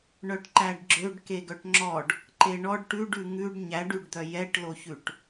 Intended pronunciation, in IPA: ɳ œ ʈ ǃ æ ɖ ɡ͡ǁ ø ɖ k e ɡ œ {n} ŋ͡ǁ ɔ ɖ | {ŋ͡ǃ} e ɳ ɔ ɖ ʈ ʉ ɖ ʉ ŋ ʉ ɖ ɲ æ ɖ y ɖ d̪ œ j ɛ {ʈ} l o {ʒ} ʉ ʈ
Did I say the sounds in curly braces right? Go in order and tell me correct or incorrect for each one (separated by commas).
incorrect, incorrect, correct, incorrect